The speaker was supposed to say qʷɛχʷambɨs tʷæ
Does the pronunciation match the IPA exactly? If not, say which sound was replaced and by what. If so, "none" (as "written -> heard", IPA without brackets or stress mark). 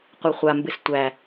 none